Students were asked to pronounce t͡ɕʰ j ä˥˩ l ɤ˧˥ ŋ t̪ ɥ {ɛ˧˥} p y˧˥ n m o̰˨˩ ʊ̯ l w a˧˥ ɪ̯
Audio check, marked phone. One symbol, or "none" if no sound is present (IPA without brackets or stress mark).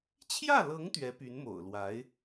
ɛ˧˥